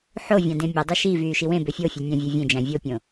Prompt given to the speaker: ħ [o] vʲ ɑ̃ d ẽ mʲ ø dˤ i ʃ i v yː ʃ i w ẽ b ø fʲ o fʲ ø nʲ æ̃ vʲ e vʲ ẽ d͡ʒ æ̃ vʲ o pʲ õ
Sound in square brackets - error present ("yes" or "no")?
no